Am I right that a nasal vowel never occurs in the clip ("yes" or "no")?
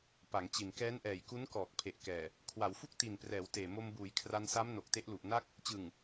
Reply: yes